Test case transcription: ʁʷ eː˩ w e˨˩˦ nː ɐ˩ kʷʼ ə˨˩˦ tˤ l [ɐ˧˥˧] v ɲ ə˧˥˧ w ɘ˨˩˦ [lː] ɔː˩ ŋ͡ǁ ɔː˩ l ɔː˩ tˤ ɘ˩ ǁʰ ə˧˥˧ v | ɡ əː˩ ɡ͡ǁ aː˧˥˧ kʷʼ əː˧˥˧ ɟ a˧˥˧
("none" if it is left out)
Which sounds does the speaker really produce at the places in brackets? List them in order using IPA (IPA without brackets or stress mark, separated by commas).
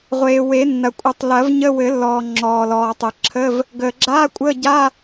ɐ˨˩˦, lː